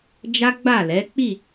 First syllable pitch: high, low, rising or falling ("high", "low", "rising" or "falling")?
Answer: high